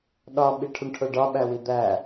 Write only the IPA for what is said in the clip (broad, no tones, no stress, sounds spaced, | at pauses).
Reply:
ɗ ɒ ɓ i ʈʰ u ɳ ʈʰ o ɖ ɒ ɓ æ w i d̪ æ